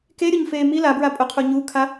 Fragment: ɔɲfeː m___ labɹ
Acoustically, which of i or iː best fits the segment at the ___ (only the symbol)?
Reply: i